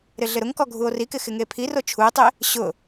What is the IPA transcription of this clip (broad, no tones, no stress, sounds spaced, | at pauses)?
ɾ ɪ ɮ ɪ ɾ ʊ ŋ k ɔ ɡʱ u o̯ r i k ɪ x ɪ ŋ e pʰ i r o t͡ʃʰ u e̯ tˤ e | ɕ ʊ